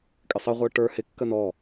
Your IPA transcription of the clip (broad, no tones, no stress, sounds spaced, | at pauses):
kʼ ɪ sˤ ɪ ʁʷ ə˞ ʈ ə˞ h ɪ kː ə n ɔ